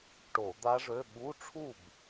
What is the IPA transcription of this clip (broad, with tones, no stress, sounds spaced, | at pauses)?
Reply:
ʈ o˧˩˧ d̪ a˦˥ ʐ ø˧˥˧ ɓ u˧˥˧ ʈ͡ʂʰ u˥˨ b